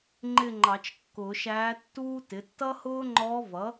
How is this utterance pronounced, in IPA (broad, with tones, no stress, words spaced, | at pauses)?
ŋ͡ǃɪ˥˧ŋ͡ǃɑ˨˩˦t͡ʃkːʊ˨˩˦ ʃæː˧˥tːuː˥tɪ˩˥ tːʌ˥hʊː˥ŋ͡ǃɔ˧˥vʌ˩˥